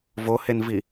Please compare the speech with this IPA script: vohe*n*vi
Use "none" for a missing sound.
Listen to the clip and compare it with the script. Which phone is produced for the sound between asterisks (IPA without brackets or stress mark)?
n